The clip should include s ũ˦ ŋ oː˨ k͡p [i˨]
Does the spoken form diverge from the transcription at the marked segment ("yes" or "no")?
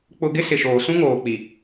no